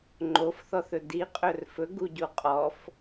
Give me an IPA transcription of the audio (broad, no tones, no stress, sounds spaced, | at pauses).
ŋ͡ǃ o f θ ɔ θ ɵ d i qʼ ɵ r f ɵ ɡ u ɟ u qʼ ɔ f